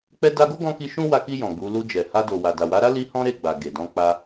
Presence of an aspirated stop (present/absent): absent